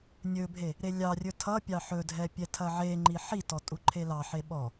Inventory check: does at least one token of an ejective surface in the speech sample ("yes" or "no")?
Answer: yes